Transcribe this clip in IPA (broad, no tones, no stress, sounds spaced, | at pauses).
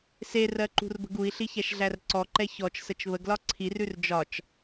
s e r ɜ ǃ ṳ r b ə̤ ɡ u i̯ ɬ i ç æ ʃ ɮ æ r ǀ ɔ ǃ ɛ ç ɔ t͡ʃ s ə t͡ʃ β ə ɡ l ɒ ǀʰ i r ʉ r d͡ʒ ɒ t͡ʃ